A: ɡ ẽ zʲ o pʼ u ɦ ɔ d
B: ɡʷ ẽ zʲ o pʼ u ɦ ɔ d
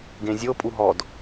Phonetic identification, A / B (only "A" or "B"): A